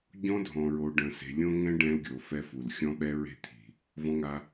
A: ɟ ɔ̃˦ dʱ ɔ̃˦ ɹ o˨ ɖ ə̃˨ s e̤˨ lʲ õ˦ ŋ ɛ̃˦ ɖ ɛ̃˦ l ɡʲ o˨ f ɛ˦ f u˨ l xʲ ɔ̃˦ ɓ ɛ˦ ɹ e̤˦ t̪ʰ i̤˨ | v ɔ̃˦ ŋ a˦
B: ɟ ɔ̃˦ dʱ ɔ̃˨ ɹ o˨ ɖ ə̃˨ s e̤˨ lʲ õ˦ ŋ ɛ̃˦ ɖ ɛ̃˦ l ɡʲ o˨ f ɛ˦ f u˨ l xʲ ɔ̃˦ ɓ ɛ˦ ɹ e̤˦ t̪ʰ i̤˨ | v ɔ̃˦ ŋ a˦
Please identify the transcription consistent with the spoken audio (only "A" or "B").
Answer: B